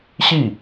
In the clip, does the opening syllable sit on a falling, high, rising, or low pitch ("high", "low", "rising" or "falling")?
falling